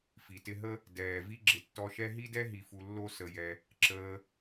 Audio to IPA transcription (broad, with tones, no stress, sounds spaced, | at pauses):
f i˩ t ɪ˧ ɦ ə˥ | d ɛː˩ v i˧ ɡ͡ǁ ɪ˩ tː ɔ˧ ʃ ɛ˥ ɦ i˥ d ɛ˥ ɦ i˩ f u˩ lː o˧ s ə˩ j ɛ˩ | ǁ əː˧